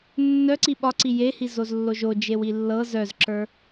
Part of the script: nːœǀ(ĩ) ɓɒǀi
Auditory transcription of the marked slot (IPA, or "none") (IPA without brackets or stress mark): i